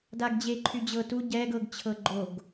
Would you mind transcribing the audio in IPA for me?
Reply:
d a ɡ d͡ʑ e ǃʰ y d͡ʑ ɤ t u ɟ ɛː ɡ ɤ ɡ t͡ɕʰ ɤ ɡ͡ǃ o ɡ

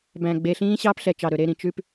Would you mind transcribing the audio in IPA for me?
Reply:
b æ̃˨ ɡ͡b eː˨ ɬ ĩː˦ ɕ ɑː˦ p ɬ ɛ˨ t͡ʃ ɑ˨ ɾ ɵ˨ ɾ e˦˨ ɾ ĩ˨ t͡ʃ ʉ˦ p

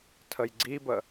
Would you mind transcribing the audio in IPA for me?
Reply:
tʰ ə j ɡ͡ǀ i b ə

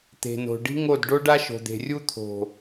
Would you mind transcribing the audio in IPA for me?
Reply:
t̪ e̤˨ n o̤˨ ɖ i̤˦ ŋ o˦˨ d ɖ o˦ ɖ a˦ ʃ o̤˨ d̪ e̤˨ rʲ u˦ t̪ʰ o̤˨

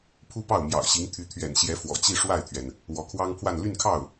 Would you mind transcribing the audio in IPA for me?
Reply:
pʰ u˥ p ɑ˥˩ ʊ̯ m j ɑ̰˨˩ ʊ̯ ɕ i˧˥ ŋ t̪ʰ y˧˥ t̪ʰ ɥ ɛ̰˨˩ n ɕ j ɛ˧˥ f w ɔ̰˨˩ t͡ɕ i˥˧ ʂ w a˥˩ ɪ̯ t̪ʰ ɥ ɛ˩ n | w ɔ˧˥ kʰ w ɑ˥ ŋ pʰ w a˥˧ n l y˥˧ n kʰ ɑ˥˩ ʊ̯

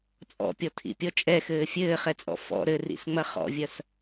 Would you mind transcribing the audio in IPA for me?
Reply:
t͡sʼ ɔ̰ pʲ ɔ tʰ ḭ pʲ ɔ t͡ʃʼ ɛ x ɘː fʲ ɘː χ ɛ t͡sʼ ɔ̰ f ɔ̰ ɾ ɘ r ḭ s ŋ͡m ɐ χ ɔ̰ vʲ ɐ s

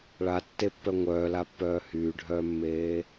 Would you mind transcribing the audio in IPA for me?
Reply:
ɭ a tː e pː œ ŋʷ œː l a pː œː h yː ɖʱ œː mː eː

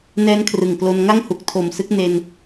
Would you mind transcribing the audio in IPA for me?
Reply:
n ɛː˦˥ n kʰ r ɯ˨˩ ŋ k l o˧ n ŋ a˥˩ ŋ h u˨˩ k̚ tʰ o˨˩ m s ɯ˦˥ k̚ n e˧ n

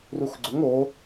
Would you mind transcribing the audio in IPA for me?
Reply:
r u x ɡ͡ǀ ʊ ŋ o

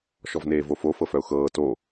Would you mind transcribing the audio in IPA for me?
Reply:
ʃ ɔ v n eː v o f o f ɤ f œ ʊ̯ x ɤː t o

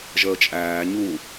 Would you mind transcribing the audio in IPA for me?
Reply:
ʒ əː t͡ʃʼ æː ɲ u

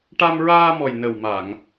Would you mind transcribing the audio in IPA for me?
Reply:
ʈ a˧ m ɹ aː˧ m ɔ˨˩ j n ə˨˩ w m a˨˩˨ ŋ

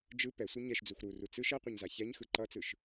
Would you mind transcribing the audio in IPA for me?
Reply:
d͡ʒ ɯ p ɛ sʷ ɯ ɲ ɛ ʃ d͡z u x ɾ u r u t͡s ɯ ʃ ɛ qʷ ɛ ɲ z a ç ɛ ɲ x ɯ ǃ ʌ t͡s ɯ ʃ

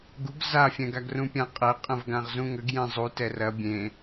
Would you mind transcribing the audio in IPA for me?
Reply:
ɡ u ɡ z a fʲ ɛ̃ ɡ a ɡ r ũ pʲ ã qʼ ɛ qʼ ə̃ v ɡ ã ʁ z ũ ŋ ə ɡ j ẽ zˤ u t ɛ r ɐ bʲ ẽ

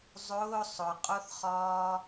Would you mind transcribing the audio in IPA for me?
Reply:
zˤ ʊː sˤ ʊ qʼ ʊ θ χ ɒː

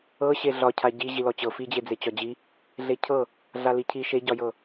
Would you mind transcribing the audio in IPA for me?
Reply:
ɤ ɕ e ɮ ɒ cʰ a ɟ i ʑ i l ɔ t͡ɕ ɤ f i d͡ʑ e d͡z e t͡ɕ ɒ d͡ʑ i | ɮ e cʰ ɤ | ɮ a l i cʰ i ʃ e ɟ ɒ j ɤ

